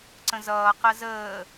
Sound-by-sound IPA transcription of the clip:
ǀ ə̃ z ʌː q ɜ z əː

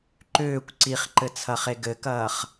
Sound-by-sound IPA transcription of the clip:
ǃ ʏː kʷ ǀ i χ ǃ ɘ t͡sʰ ɐ χ e ɡ ɘ k ɐː χ

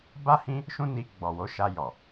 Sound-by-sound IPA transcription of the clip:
b a˦ h ĩ˦ | ʃ ũ˦ n i˧ ɡ͡b ɔ˨ w o˨˦ ʃ a˧ j ɔ˨

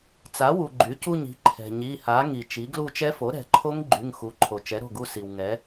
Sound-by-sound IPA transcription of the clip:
t͡s a˩˥ w u˩ ɡ͡ǃ y˩˥ c u˦˨ ɲ i̤˩˥ ǃʰ ɛ̤˩ ɲ i˩˧˩ h a˩˥ ŋ i˩ t͡ʃ i˩˥ ɡ l u˦˨ t͡ʃ ɛ˦˥ f o˩˥ ɾ ɛ̤˩˧ ǃʰ o˦˥ ŋ ɡ͡ǃ y˩˧˩ ŋ x u˩˥ ǃʰ o˩ t͡ʃ ɛ˩˥ ɾ o̤˩˧˩ ɡ u˦˨ s i˩ w ŋ ɛ˩˥

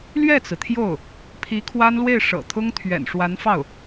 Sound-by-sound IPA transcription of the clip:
l ɥ ɛ˥˩ t͡s ɹ̩˩ t̪ʰ j o˥˩ ʊ̯ | pʰ i˧˥ kʰ w a˥ n l w e˥˩ ɪ̯ ʂ ɤ̰˨˩ t̪ʰ ʊ˥ ŋ t̪ʰ ɥ ɛ̰˨˩ n ʂ w a˧˥ n f ɑ˥˩ ʊ̯

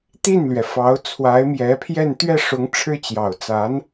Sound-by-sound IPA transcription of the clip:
t̪ i˥˩ n l ɥ ɛ˩ f ɑ˧˥ ʊ̯ t͡sʰ w a˧˥ ɪ̯ m j ɛ˧˥ pʰ j ɛ˥˧ n t̪ ɥ ɛ˥˩ ʂ ʊ˧˥ ŋ ʈ͡ʂʰ ɻ̩˥ t͡ɕ j ɑ˨˩ ʊ̯ t͡s a˧˥ n

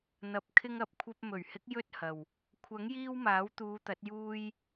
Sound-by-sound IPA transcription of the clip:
n̪ ɐ˧ p̚ kʰ ɪ˧ ŋ ɐ˨ p̚ kʷʰ ɐ˧ p̚ m ɵ˨˩ ɥ h ɪ˨˥ k̚ j ɵ˥ t̚ h ɐ˨ w | kʷʰ ɐ˨˥ ŋ j iː˧ w m aː˨˥ w t̪ uː˨˧ t̪ ɐ˨˥ t̚ j uː˧ j

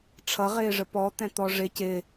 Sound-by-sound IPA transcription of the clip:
ʈ͡ʂʰ ʌ ʁ ɪː ʐ ə p ɔ t̪ ɛ̃ t̪ ɔ ʐ ɪ c ɪ

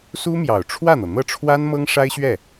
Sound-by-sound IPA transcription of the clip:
s u˥ m j ɑ˨˩ ʊ̯ ʈ͡ʂʰ w ä˥˩ n̪ ɤ˩ n̪ ɤ˥˩ ʈ͡ʂʰ w a˥ n m ɤ˥ ŋ ʂ a˥ ɪ̯ ɕ ɥ ɛ˥˩

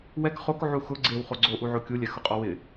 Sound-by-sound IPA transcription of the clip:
w ɛ k χ o k ʕ u x ʊ ɡ͡ǀ e w χ o ɡ͡ǀ o ʔ u ʕ o kʲ u lʲ ɛ x ʊ qʼ ɔ w ɪ

